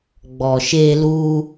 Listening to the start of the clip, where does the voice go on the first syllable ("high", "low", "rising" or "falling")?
low